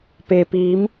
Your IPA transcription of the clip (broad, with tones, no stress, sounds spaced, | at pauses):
p e˩ p iː˩˧ m